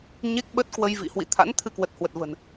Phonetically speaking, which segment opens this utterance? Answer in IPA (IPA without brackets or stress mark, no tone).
ɲ